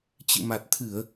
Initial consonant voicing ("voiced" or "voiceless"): voiceless